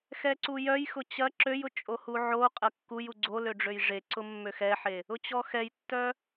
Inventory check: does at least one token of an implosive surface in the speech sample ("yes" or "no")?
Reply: no